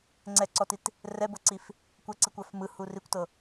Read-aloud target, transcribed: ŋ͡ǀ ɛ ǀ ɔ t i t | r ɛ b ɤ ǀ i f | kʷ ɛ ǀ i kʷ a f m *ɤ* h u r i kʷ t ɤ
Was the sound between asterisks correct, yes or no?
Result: no